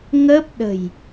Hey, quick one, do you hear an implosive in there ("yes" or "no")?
yes